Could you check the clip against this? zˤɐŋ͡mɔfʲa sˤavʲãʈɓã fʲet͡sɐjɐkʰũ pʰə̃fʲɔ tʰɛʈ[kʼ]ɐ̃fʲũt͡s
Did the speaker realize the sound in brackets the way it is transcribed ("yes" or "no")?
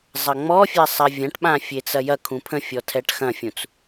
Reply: no